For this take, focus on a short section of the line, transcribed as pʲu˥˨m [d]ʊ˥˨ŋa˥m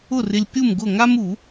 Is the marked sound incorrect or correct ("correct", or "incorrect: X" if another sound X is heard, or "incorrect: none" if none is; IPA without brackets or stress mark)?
incorrect: ɡ